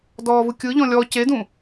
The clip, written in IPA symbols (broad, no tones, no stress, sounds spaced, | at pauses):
d ɔː v ɯ kʲ ɯ ʎ ɔ̃ lʲ ɔ c e d ũ